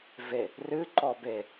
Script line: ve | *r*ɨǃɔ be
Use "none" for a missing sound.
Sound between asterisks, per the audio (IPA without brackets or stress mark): r